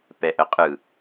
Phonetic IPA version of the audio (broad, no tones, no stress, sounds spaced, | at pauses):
p ɛ ʔ ə qʼ ɯ